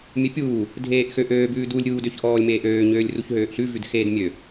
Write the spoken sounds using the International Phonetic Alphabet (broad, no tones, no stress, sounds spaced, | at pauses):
mʲ ø pʲ uː | dʱ eː ʔ x ø ʔ øː b ʉː d u lʲ ɾʲ uː d ø ç ʔ ɔː lʲ m eː ʔ øː ɲ øː lʲ r u ç ɦ øː ʔ ɬ ʉ v ʉ d x eː d mʲ ø